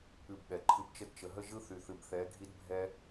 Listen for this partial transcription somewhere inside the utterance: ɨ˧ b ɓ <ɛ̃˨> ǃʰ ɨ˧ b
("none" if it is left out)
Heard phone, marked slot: ɛ˨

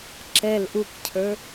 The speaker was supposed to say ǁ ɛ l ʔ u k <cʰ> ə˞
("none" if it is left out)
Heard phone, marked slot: cʰ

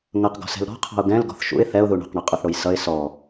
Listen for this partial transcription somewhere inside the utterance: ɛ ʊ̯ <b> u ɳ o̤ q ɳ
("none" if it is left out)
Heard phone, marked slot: ð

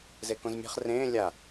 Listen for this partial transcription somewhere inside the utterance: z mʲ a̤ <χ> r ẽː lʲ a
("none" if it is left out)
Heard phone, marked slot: χ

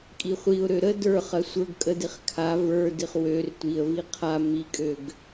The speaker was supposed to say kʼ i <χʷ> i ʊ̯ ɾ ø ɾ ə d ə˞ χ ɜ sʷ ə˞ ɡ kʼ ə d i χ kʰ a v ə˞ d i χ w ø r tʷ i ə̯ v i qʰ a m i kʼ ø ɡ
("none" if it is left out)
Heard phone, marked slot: χʷ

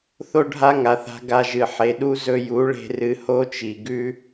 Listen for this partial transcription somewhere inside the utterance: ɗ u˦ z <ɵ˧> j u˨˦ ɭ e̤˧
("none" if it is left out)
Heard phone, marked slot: ɵ˧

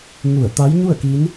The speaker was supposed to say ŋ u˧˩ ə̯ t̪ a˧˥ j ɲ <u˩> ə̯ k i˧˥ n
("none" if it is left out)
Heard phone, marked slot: u˥˨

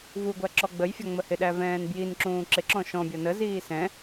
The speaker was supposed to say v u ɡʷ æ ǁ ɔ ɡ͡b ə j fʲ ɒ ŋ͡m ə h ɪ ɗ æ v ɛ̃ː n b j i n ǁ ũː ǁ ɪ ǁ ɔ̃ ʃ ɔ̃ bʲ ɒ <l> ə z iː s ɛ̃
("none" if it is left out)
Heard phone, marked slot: n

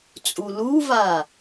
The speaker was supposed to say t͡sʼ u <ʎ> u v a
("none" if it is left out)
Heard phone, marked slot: l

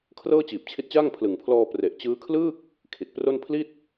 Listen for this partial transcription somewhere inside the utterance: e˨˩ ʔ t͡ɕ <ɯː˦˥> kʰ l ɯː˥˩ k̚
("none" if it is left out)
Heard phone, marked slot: ɯː˦˥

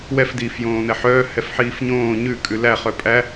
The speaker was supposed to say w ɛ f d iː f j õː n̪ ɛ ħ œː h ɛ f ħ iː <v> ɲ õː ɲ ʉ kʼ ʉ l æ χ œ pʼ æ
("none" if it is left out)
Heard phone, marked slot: f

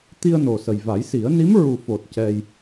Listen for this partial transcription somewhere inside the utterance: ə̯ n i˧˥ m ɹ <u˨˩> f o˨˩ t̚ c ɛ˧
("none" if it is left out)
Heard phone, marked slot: u˨˩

